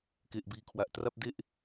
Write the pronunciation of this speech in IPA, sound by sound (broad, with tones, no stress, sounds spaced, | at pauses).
k e˨˩ ʔ b iː˨˩ kʰ w a˨˩ ʔ t r a˥˩ p̚ d e˥˩ ʔ